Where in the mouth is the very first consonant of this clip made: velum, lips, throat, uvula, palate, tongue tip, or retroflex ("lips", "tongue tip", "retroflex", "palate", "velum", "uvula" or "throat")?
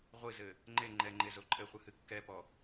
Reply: uvula